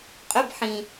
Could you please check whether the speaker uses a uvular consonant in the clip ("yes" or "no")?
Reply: yes